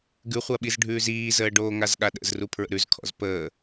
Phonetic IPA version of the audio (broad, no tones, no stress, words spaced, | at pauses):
ɡʉχʷaɓiz ɖʱʉːziːzəː ɖoːŋazɠaɗə̰z rupʰɹə̰ɾʉz kʰɔ̰zpəː